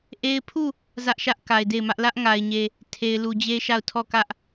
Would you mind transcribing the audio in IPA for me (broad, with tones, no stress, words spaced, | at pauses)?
ʔe˦ɪ̯ pʰu˦˨ | zä˦ʔʃä˦ʔ ka˨ɪ̯de˦˨ɪ̯mä˦ʔ lä˦ʔŋa˨ɪ̯ɲe˨ | tʰe˨ɪ̯lu˨d͡ʑe˦ʃa˦˨ʊ̯ tʰɔ˦˨kä˦ʔ